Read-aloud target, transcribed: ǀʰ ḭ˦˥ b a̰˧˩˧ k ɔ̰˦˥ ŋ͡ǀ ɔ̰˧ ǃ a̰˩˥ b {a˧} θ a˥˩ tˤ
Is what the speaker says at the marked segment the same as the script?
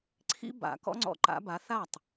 no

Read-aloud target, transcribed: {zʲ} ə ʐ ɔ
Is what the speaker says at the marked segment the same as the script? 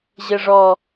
no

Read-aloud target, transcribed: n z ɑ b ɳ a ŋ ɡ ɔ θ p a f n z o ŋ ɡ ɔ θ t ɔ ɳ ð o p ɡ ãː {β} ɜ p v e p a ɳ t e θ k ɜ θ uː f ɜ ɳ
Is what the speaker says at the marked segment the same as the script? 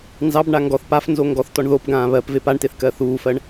yes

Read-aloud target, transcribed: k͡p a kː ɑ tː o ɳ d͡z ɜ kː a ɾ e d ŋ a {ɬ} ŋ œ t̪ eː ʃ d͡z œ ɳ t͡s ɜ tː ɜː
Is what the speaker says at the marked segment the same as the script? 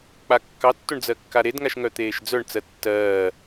no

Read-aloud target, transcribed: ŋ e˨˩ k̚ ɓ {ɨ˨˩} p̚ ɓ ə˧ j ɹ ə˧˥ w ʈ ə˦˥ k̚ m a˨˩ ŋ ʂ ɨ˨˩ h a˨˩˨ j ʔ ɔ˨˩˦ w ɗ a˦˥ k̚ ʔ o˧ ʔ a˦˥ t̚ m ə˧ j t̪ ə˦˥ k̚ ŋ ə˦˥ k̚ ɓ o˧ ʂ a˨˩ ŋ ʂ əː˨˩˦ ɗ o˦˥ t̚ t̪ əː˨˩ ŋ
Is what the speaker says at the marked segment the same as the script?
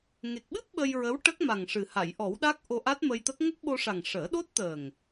no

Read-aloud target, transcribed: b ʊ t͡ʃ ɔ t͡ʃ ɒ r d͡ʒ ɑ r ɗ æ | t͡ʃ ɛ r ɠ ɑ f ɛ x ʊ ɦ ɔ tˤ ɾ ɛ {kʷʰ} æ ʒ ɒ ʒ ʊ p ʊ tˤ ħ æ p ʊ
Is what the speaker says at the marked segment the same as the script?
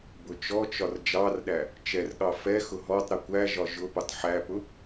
no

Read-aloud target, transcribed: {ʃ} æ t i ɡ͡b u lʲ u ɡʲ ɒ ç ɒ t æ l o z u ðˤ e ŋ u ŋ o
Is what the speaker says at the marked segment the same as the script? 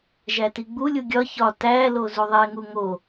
no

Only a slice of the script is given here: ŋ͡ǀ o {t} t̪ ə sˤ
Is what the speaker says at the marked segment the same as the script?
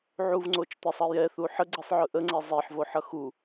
no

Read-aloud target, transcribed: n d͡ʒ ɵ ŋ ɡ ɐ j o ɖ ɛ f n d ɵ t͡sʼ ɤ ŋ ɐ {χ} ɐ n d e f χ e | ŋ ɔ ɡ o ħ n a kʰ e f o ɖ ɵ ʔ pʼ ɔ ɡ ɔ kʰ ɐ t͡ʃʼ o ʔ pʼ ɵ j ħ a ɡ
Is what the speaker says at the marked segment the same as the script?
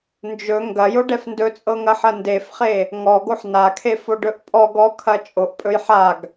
no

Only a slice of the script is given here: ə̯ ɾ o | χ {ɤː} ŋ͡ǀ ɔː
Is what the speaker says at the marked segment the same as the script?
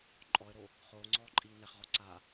no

